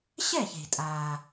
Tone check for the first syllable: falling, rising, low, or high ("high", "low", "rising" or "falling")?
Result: falling